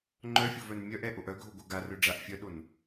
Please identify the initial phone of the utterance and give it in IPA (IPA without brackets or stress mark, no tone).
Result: ŋ͡ǃ